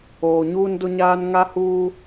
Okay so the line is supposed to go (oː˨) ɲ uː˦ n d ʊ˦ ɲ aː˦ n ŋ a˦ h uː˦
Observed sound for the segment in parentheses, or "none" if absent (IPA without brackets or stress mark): oː˨